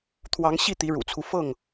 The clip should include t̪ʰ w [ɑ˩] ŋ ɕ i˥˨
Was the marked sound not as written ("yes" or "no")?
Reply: yes